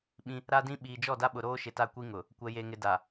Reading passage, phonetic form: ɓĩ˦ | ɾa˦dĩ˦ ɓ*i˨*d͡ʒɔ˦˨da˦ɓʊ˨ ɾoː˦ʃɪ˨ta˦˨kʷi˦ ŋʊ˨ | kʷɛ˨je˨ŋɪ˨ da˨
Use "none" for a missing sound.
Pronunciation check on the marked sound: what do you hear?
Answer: iː˨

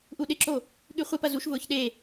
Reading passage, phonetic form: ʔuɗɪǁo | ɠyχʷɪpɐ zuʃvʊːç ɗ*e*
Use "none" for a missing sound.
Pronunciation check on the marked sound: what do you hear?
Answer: e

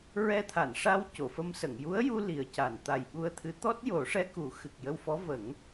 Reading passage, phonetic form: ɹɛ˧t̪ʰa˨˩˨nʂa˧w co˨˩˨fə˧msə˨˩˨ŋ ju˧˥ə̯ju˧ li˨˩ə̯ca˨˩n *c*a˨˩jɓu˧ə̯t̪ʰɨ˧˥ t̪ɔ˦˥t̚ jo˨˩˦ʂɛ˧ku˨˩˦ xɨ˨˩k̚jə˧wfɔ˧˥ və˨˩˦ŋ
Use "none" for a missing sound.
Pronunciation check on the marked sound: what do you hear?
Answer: t̪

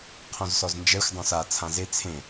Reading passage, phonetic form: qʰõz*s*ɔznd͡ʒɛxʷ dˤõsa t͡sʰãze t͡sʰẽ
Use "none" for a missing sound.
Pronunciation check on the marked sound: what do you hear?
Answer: s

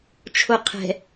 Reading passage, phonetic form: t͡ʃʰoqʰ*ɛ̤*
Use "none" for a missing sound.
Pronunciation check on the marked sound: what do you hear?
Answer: ɛ̤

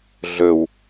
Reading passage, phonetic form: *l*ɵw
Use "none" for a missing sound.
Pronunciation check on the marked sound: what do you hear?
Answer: ɮ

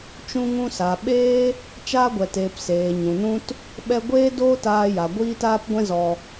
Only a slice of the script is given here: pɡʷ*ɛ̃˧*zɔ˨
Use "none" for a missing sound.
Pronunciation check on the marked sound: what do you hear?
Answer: ɛ̃˧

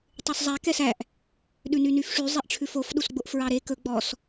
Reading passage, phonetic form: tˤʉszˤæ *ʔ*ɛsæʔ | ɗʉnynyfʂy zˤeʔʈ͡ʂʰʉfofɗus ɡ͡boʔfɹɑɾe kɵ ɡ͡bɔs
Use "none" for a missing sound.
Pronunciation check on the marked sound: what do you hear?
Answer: k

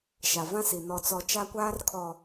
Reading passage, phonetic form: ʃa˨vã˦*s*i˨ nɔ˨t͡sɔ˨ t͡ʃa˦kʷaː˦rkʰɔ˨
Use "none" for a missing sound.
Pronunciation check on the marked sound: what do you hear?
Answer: s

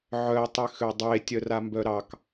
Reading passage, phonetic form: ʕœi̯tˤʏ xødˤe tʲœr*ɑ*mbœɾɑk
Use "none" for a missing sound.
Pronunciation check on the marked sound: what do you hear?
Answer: a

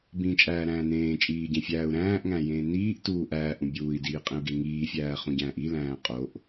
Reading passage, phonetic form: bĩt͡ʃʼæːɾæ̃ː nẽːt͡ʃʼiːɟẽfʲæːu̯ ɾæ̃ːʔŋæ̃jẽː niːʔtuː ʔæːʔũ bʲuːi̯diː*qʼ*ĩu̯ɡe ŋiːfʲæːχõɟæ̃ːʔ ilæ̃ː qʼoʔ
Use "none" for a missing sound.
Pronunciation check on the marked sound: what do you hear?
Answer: qʼ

